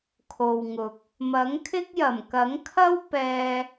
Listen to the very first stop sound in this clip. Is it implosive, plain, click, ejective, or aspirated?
aspirated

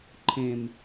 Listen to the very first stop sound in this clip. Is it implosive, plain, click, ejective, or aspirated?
click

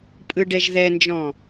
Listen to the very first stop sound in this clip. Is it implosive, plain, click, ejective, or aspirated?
ejective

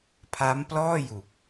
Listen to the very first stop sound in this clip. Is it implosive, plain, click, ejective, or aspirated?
aspirated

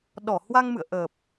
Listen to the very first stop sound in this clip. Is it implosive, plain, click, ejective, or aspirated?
implosive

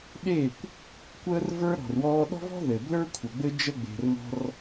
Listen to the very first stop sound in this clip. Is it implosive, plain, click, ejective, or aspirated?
implosive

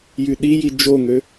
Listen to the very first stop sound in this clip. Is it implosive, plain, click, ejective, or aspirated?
implosive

